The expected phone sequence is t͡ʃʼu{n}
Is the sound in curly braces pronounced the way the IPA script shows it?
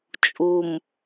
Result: no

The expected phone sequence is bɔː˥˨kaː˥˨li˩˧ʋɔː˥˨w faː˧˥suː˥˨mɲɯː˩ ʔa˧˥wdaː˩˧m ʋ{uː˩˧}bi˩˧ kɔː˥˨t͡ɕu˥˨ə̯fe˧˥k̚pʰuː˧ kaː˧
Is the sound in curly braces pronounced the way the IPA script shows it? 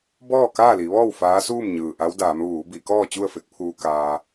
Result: yes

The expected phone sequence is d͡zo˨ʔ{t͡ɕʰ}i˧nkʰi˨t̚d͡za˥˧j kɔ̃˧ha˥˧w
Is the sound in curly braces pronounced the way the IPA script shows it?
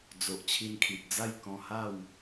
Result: yes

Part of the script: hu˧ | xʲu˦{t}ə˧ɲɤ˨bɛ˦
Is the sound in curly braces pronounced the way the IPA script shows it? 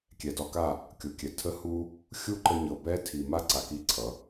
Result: no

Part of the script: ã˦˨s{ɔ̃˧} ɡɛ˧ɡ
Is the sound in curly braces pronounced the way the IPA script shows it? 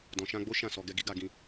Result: no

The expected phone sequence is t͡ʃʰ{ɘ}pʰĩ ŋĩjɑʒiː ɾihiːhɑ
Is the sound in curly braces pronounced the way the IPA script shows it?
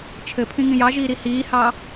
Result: yes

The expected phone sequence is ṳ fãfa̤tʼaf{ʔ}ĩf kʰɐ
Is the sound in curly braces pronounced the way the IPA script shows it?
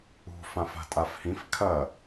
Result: no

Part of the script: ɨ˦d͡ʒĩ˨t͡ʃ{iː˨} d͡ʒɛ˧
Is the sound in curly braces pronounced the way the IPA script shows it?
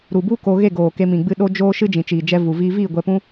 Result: yes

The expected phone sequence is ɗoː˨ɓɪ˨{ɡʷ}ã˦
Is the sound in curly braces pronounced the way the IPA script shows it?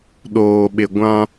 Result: yes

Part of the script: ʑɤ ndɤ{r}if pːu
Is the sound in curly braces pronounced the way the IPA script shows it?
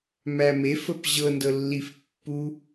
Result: no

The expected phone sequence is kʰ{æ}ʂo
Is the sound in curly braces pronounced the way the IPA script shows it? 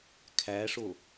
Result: yes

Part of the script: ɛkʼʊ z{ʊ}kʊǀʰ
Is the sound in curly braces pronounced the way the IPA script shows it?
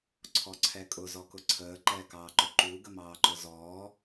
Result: no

